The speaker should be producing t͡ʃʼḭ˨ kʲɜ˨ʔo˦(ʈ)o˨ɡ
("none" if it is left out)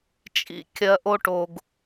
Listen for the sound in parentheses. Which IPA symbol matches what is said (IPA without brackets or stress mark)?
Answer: ʈ